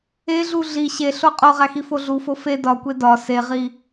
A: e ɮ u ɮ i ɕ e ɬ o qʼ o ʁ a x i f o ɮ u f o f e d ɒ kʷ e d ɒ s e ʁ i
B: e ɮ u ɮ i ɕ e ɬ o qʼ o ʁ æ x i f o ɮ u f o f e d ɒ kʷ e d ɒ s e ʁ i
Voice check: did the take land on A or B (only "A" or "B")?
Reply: B